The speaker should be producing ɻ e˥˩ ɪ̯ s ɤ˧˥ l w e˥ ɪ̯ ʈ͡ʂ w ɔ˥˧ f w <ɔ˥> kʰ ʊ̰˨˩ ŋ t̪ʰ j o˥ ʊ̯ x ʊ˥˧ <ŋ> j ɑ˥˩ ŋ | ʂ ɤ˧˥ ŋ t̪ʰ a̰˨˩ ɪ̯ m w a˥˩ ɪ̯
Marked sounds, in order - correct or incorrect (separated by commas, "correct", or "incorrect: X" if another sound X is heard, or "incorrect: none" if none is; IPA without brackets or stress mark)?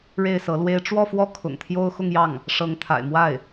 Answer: incorrect: ɔ˥˩, correct